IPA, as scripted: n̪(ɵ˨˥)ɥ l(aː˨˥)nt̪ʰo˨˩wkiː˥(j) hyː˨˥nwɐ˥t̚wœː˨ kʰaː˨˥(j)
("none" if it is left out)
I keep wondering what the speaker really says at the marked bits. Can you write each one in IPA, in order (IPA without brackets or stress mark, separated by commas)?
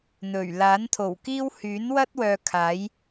ɵ˨˩, aː˨˥, w, j